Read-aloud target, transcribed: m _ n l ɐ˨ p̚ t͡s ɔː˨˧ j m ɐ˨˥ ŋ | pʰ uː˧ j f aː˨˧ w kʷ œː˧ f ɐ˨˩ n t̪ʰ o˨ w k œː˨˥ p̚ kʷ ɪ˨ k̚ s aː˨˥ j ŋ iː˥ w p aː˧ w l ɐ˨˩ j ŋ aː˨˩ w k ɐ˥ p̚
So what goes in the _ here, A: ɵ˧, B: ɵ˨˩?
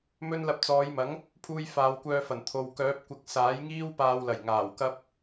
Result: A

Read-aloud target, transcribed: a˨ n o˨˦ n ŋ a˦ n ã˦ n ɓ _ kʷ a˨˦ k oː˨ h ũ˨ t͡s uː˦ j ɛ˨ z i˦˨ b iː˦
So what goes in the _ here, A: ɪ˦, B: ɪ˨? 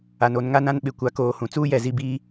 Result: B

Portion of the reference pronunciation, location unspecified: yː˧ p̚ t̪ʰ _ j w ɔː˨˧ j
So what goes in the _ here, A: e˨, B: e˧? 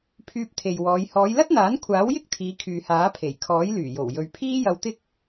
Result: A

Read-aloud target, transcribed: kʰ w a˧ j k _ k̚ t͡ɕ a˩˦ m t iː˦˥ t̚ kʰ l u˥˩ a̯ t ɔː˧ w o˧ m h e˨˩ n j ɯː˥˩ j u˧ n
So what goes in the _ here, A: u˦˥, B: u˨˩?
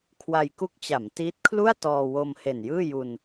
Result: A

